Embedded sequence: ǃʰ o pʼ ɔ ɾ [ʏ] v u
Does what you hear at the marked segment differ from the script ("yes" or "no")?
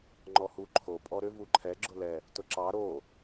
no